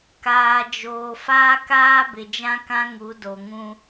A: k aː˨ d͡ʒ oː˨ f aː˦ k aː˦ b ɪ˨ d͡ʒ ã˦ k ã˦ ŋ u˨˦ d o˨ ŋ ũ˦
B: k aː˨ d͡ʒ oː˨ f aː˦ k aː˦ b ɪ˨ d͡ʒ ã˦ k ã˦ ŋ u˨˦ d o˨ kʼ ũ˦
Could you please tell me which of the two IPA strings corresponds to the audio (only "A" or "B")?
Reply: A